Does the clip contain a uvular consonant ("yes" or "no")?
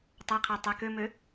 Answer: yes